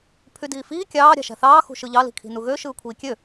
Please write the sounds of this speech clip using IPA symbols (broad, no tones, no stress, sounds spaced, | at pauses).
pʰ y d iː f iː kʲ ɑː ɾʲ ɑ̤ ʃ æ̤ θ ɑː x ṳ ʃ ɯ ʎ ɑ l i̤ kʰ i̤ n u ɣ ø ʃ ɯː kʷʰ iː kʲ ø